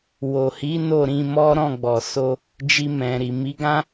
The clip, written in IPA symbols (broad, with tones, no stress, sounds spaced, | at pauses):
w o˨ h i˨˦ n o˦˨ ɾ ĩ˧ m ɔ˦ ɾ ɔ̃˦˨ ɡ͡b ɔ˨ s o˧ | d͡ʒ i˧ m ɛ̃˨ ɾ i˨ m i˨˦ ɡ ã˦